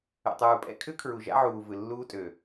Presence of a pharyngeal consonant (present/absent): present